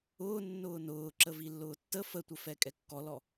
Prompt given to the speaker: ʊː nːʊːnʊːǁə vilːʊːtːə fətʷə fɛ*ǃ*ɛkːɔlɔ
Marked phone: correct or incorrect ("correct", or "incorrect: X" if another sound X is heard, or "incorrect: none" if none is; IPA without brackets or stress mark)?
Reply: incorrect: kʼ